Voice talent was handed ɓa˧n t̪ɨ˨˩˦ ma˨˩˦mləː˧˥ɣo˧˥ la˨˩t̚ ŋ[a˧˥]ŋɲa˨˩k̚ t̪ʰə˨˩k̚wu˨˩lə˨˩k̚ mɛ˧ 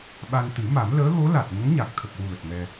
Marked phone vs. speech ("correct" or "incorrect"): incorrect